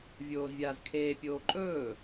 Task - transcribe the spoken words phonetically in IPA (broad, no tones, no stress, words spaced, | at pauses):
vʲoːzvʲaːzkʰeːpʲoː ǃʼɵː